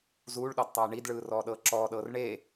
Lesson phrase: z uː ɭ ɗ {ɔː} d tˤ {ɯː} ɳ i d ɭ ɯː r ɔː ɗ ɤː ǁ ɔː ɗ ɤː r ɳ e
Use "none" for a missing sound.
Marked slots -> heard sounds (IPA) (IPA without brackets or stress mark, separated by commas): ɔ, ɤː